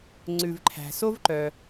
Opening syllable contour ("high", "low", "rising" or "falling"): low